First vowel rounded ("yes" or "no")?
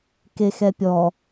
no